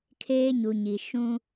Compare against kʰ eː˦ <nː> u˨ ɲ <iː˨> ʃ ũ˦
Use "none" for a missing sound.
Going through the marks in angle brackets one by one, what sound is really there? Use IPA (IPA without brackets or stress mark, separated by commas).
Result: ɲ, i˨